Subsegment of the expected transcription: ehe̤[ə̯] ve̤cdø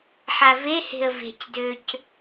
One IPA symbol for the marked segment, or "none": ə̯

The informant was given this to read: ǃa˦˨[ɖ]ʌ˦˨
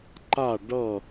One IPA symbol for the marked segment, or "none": ɖ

